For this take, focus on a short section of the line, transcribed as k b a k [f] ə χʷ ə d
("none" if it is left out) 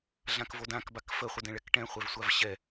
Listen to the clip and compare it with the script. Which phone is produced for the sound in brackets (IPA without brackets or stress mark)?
f